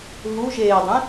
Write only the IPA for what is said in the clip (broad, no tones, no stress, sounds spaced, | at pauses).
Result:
ɦ u ʒ eː dˤ ẽ